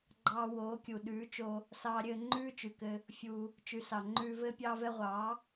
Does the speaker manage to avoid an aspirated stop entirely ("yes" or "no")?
yes